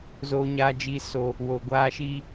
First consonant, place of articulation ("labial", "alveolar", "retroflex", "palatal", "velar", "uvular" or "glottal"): alveolar